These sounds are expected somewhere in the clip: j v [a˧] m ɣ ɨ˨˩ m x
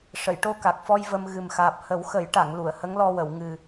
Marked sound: incorrect: ə˧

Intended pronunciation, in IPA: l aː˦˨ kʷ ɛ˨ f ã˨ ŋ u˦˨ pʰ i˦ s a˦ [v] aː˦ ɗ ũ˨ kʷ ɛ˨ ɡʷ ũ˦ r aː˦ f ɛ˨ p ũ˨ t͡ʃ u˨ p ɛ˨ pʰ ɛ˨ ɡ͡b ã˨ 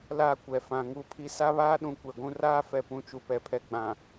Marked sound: incorrect: β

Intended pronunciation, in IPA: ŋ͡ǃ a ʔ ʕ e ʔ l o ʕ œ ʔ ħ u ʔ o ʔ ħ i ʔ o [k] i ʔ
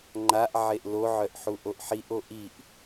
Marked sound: incorrect: ʔ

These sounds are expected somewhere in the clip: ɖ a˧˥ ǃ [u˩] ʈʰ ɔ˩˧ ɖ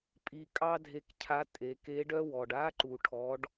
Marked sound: correct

